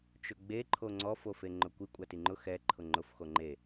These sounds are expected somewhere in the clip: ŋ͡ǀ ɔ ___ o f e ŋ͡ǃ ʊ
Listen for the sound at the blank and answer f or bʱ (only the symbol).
f